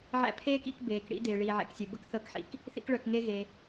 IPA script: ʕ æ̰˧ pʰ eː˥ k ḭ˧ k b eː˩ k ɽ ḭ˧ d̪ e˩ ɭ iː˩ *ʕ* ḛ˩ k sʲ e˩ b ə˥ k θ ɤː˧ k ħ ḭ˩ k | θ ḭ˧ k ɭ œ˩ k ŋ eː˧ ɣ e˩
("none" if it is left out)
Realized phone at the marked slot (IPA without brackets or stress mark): ʕ